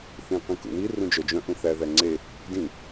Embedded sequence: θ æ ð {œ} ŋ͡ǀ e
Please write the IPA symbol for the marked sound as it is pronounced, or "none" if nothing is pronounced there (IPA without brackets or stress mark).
æ